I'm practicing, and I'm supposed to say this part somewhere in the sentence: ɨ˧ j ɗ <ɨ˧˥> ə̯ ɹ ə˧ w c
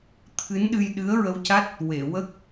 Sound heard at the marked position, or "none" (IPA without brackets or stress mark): ɨ˧˥